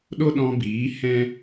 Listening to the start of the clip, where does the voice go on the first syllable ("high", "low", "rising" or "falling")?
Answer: high